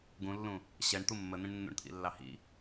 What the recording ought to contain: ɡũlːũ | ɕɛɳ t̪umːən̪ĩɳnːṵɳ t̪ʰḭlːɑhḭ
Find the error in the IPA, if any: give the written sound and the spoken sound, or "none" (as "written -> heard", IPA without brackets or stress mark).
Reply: none